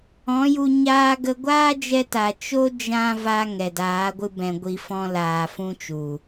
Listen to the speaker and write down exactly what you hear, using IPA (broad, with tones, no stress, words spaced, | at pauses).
ɔ̃˨˦ju˧ ɲaː˧ɡə˧ ɡʷaː˦d͡ʒɛ˧ta˨ t͡ʃo˧ d͡ʒã˦ va˧ ŋɛ˨daː˨˦ɡʷɨ˧ bɛ̃˨ɡʷi˧fɔ̃˦laː˨ fũ˦t͡ʃu˨